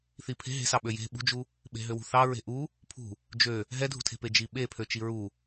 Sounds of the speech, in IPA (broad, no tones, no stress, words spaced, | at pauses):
θipʰe̤ ɦe̤sɑ ɓøje̤ ɓṳd͡ʒu | ɓe̤ɦøwṳθɑ ɹe̤ʔu | pʰṳ | d͡ʒø | ɦɛdʱṳtʰe̤pe d͡ʒiɓepʰø t͡ʃiɹu